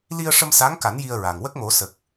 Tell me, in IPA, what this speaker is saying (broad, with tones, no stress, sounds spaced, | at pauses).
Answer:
l i˧ ə̯ ʂ ə˧ m s a˧˥ ŋ k a˨˩˦ n j i˧ ə̯ ɹ a˨˩ ŋ w ə˦˥ k̚ m o˨˩˦ s ə˨˩ k̚